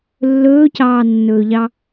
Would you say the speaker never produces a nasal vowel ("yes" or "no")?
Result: yes